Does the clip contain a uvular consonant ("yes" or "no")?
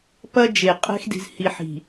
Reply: yes